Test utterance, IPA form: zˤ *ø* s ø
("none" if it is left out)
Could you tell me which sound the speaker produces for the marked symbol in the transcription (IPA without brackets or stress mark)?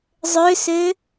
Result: ø